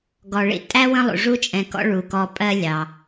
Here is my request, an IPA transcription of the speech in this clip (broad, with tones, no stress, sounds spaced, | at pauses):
ɡ ɔ˩ ɭ ḭ˦ tʼ æ˥ w ə̃˦ lˠ ṵ˩ ʐ u˦ t͡ʃʼ ɛ̃˨ k ɔ̰˦ ɭ u˩ k ɔ˨ pʼ ɜ˦ lʲ ɑ˩